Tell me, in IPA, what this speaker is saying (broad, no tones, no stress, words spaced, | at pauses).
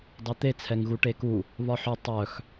dˤet̪e t͡sʰɛŋɣuʈeku | βɒħɵ tˤœx